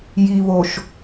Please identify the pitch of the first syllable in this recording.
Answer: low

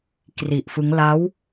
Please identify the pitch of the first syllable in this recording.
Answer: low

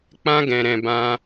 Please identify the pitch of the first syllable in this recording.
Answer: high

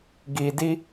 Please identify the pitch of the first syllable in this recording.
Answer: low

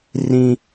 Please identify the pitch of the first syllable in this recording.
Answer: high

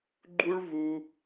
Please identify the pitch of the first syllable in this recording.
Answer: high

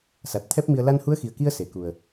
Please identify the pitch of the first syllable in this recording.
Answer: low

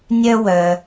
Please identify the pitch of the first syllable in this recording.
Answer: high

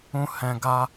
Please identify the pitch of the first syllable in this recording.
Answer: high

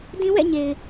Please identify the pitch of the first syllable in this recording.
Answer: high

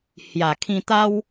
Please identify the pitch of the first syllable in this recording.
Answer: low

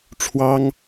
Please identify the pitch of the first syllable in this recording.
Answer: high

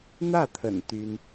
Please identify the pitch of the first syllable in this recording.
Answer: falling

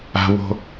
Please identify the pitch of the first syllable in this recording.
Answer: high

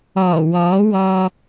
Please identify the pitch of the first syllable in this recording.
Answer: low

